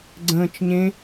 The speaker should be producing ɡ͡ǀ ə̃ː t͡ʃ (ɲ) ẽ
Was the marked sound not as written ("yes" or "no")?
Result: no